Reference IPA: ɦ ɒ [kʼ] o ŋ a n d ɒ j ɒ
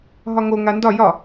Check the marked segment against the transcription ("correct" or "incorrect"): incorrect